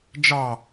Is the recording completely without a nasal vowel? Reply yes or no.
yes